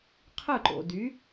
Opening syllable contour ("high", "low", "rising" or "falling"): falling